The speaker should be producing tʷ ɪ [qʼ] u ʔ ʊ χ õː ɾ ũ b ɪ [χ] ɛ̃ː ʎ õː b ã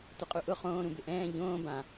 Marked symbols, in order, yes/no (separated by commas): yes, no